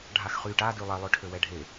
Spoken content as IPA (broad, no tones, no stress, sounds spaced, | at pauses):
ɖʱ a x χ y ʈ a d y lˠ ɛ lˠ ø ʈʰ ø w ɛ ɖʱ e